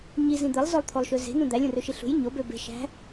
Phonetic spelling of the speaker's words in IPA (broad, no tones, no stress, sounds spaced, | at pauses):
ɲ i z ĩ d̪ e lˠ z o lˠ t̪ʰ o lˠ ʃ ø z e̤ n ũ d̪ æ lʲ ũ r ø ʃ i ɬ ṳ j ɲ o b ø b e̤ ʃ æ̤